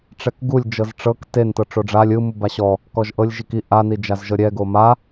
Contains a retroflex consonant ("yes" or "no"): yes